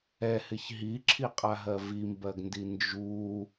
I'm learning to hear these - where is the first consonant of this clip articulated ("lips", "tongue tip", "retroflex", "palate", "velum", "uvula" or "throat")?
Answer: throat